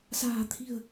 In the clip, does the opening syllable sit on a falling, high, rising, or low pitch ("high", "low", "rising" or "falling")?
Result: low